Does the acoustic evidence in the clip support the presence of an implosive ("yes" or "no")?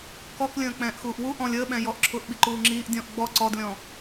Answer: yes